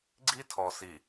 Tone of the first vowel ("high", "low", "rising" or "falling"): high